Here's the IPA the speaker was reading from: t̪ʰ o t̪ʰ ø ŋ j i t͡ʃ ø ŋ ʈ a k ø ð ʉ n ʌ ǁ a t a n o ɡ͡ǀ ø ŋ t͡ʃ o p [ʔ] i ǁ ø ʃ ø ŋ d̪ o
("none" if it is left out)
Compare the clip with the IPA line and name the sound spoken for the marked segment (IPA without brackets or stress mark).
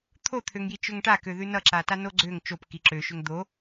k